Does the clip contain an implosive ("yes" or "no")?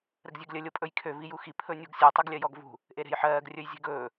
no